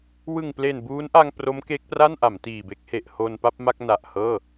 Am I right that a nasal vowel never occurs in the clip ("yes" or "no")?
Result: yes